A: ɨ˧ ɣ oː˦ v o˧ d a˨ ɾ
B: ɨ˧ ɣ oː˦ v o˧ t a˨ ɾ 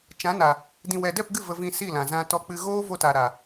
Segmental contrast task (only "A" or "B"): B